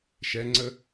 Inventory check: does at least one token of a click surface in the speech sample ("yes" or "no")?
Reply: yes